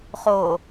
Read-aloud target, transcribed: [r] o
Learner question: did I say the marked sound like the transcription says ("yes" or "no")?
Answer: no